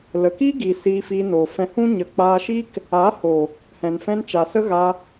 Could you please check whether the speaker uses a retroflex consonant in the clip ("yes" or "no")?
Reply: no